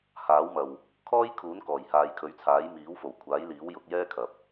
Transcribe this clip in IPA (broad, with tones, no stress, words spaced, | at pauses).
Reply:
haː˨˥wmɐ˨w | kʰɔː˥jkʰuː˨˥n kɔː˨˩jhaː˨jkʰɵ˨˥ɥt͡sʰaː˨˥j miː˨˥wfo˨˩wkʷʰaː˨˥jliː˨˥w jʊ˨˥k̚jɛː˥kʰɐ˨p̚